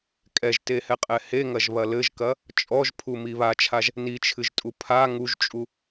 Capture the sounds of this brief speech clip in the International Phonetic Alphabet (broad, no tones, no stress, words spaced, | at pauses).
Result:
kʼɛʒtehɛqʼɛ heŋɐʒβɐ lɘʒkɐ | t͡ʃʼɔʒpʰumi βat͡ʃʰaʒ | nit͡ʃʰɨʒtʼu pʰa ŋuʒt͡ʃʼu